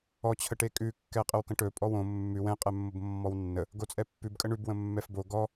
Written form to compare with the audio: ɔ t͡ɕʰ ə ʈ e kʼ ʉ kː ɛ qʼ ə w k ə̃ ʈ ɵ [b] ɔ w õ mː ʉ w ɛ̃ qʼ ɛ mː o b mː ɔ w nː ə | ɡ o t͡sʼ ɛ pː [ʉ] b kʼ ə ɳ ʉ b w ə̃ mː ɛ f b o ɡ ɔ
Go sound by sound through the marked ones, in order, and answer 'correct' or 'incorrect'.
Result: incorrect: pʼ, correct

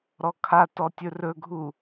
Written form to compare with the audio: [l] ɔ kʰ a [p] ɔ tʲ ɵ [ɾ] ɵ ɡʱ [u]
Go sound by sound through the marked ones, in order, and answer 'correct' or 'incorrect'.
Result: incorrect: ɾ, incorrect: t, incorrect: r, correct

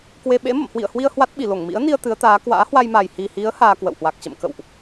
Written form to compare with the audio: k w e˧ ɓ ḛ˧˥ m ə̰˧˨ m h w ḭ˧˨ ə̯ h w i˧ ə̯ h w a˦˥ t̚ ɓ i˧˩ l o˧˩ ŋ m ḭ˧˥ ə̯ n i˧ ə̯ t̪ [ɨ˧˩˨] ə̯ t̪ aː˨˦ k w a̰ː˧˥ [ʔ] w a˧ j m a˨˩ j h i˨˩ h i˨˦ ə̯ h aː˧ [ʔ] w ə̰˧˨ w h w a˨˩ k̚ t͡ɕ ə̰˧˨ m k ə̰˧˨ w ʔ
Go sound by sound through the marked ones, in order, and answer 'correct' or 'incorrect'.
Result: incorrect: ɨ˨˦, incorrect: h, incorrect: k

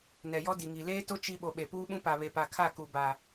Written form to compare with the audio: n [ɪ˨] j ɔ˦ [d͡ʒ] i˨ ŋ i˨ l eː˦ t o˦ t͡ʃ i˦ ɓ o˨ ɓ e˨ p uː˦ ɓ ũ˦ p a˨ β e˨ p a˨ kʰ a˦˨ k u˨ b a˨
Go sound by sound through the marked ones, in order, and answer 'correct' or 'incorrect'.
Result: incorrect: ɛ˨, incorrect: d

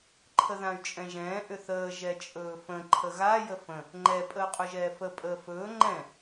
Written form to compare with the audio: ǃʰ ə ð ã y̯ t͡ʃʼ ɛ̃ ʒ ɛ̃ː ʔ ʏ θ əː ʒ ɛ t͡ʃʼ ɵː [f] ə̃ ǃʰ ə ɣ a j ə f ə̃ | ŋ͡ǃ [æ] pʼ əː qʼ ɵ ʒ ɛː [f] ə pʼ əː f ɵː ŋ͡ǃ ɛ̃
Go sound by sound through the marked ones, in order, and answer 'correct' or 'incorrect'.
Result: correct, incorrect: ɛ, correct

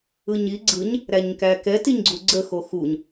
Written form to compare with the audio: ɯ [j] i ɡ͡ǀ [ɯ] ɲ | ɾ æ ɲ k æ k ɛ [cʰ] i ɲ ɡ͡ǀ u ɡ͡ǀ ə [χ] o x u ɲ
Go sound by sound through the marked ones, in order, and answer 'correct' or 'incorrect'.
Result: incorrect: ɲ, correct, incorrect: t, incorrect: x

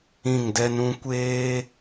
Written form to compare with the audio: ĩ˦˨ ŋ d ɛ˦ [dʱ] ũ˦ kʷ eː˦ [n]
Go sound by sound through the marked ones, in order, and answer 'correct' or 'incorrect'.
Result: incorrect: n, incorrect: none

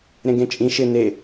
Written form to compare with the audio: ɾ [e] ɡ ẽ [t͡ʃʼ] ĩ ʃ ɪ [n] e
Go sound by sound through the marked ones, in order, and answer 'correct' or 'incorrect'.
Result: incorrect: ẽ, correct, correct

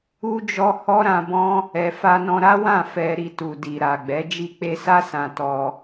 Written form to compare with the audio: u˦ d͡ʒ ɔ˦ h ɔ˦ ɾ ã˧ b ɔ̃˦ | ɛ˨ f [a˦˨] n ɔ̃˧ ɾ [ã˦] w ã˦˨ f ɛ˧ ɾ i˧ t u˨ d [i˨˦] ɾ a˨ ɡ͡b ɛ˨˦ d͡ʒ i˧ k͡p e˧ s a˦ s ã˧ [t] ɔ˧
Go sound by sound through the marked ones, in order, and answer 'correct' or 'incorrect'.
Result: incorrect: a˧, incorrect: a˦, incorrect: i˨, correct

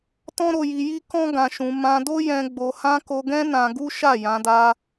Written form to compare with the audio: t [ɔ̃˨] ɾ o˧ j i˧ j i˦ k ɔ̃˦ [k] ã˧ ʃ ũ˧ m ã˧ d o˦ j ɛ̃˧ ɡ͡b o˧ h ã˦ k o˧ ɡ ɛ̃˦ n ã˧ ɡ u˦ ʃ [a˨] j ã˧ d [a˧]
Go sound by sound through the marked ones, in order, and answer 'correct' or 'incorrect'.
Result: incorrect: ɔ̃˦, incorrect: ɡ, incorrect: a˦˨, correct

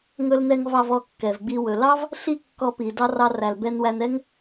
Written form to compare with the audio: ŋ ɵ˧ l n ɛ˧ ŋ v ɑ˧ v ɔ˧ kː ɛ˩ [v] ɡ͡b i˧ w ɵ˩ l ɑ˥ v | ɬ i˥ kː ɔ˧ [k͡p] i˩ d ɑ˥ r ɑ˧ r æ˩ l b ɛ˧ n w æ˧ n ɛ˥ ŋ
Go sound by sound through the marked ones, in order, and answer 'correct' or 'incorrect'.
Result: correct, incorrect: p

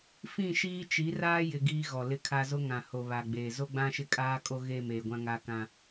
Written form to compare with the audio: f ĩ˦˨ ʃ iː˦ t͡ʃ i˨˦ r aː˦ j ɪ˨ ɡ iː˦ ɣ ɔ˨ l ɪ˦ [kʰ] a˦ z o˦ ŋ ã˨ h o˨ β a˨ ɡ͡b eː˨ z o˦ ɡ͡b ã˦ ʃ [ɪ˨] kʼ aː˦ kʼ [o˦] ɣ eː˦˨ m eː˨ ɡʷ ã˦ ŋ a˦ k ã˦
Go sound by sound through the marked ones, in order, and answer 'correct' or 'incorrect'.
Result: correct, incorrect: ɪ˦, correct

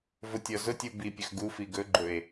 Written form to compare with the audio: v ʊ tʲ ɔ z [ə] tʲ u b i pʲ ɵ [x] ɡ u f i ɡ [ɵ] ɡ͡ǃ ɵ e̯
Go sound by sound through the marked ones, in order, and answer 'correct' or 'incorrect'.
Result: incorrect: ʊ, correct, correct

